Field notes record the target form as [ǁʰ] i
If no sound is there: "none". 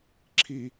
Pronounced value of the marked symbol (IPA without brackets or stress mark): ǁʰ